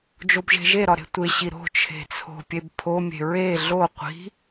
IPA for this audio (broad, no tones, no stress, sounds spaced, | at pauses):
d͡ʒ o b ʒ e̤ ʒ e ɾ ɒ ɾ e̤ tʷ e ɕ i ɾ o̤ t͡ʃʰ e̤ t͡sʰ o̤ pʲ e b pʰ o mʲ e̤ ɹ e ɮ o qʷ i̤